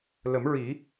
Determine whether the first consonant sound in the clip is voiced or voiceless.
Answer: voiced